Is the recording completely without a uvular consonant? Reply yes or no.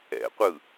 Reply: no